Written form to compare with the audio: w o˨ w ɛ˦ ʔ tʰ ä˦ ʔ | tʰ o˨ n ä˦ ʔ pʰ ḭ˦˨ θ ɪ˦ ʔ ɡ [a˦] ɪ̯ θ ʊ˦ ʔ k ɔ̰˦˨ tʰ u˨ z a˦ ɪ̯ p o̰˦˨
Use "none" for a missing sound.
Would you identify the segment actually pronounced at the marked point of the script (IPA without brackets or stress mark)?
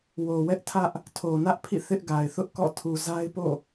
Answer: a˨